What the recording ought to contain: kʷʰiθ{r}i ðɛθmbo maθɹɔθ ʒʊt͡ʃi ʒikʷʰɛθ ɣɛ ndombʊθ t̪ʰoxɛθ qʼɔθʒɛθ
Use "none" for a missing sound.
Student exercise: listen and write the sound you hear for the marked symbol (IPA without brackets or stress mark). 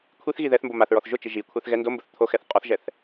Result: ɣ